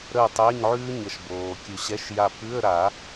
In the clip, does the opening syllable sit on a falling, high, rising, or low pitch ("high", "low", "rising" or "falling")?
falling